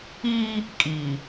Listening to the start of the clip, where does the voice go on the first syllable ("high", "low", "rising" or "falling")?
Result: high